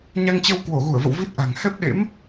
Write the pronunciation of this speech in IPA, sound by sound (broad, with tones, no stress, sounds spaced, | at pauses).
ɲ a˧ ŋ t͡ɕ ə˧ w k w o˧˩ ɣ u˧˩ ə̯ v ə̰˧˨ w v i˦˥ t̚ ʔ a̤˨˩ ŋ h ɛ˦˥ p̚ ɗ ḛ˧˥ m